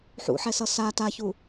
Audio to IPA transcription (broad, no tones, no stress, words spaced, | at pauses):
ħṵħɛsʌ sa taçu